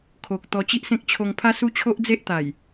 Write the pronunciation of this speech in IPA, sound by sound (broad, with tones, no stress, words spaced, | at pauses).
kʰo˨k̚ t̪ɔ˧t͡ɕi˦ʔsẽ˦k̚ t͡ɕʰo˧ŋpʰa˦ su˦t͡ɕʰo˦ʔd͡ze˦ʔt̪a˨˩j